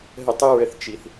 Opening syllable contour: falling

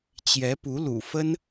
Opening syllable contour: rising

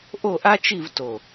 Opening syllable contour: falling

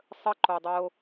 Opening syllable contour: high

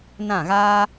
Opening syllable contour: falling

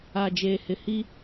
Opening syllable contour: low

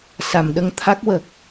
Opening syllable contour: low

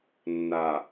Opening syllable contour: low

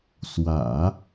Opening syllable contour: low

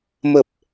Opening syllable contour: low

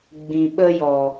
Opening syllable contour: low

